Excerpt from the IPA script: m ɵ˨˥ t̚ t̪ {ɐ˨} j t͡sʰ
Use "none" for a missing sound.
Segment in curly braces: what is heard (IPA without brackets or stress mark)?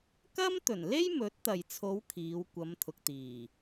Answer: ɐ˨